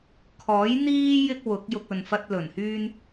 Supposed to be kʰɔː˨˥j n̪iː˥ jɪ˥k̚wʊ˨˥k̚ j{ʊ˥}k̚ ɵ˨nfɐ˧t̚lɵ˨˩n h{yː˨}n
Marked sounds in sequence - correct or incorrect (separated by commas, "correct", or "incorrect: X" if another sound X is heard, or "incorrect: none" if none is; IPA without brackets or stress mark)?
incorrect: ʊ˧, incorrect: yː˧